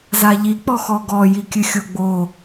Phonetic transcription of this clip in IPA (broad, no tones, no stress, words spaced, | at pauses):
zaʎi k͡pɔxɔɡɔ jikʲɨxʲoɡ͡bo